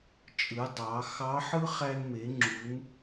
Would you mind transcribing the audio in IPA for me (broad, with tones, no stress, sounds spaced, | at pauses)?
t͡ʃʼ ɯ˩˧ dˤ ɑ˩˧ x ɑ˧˥ ħ ɯ˥ χ æ˧ n m e˩˧ ŋ͡ǁ u˩˧ n